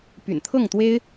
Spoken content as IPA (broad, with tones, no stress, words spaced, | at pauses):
py̰˨˩n t̪ʰɤ˥˩ŋt̪we˥ɪ̯